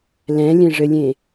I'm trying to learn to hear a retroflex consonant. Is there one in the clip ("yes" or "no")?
yes